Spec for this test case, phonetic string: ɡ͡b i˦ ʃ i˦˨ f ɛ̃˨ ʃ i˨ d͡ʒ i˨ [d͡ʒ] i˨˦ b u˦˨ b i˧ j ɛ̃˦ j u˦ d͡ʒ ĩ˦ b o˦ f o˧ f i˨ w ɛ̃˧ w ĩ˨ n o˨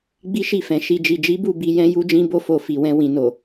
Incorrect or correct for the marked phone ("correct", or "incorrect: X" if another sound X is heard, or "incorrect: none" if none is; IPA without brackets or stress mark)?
correct